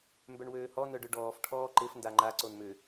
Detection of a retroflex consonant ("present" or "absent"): present